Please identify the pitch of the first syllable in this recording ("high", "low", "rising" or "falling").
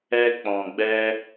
high